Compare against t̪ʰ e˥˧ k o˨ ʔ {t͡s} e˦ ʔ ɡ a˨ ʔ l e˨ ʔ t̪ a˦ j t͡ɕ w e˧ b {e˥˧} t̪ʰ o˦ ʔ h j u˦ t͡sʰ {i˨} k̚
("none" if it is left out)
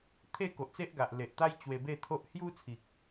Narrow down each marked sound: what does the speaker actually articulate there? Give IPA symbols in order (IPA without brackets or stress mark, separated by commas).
t͡s, e˥˧, i˨